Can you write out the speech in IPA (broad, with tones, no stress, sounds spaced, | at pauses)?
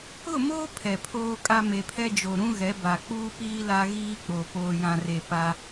ʊ˦˨ m oː˦ pʰ ɛ˨ pʰ oː˦ kʼ a˦ m e˨ pʰ ɛ˦ d͡ʒ o˨ ɾ ũ˦ ɣ ɛ˨˦ b a˨ k͡p uː˦ p iː˦ l a˦ ɣ iː˦ k͡p o˨ p oː˨ j ã˨ r e˨ p a˦